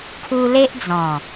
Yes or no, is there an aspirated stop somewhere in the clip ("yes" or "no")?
yes